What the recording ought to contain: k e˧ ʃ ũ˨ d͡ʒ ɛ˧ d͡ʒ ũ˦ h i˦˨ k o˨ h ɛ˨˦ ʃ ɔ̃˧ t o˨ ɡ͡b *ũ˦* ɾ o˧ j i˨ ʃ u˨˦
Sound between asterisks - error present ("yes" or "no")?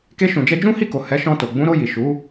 yes